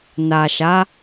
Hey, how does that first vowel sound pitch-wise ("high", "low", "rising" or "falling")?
low